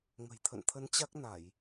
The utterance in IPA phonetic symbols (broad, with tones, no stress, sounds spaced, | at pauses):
ŋ ə̤˨˩ j t̪ʰ ə̰˧˨ n t̪ʰ ə˨˦ n t͡ɕ a˦˥ k̚ n a˧˩˨ j